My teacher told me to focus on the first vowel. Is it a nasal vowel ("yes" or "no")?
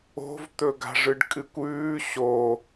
no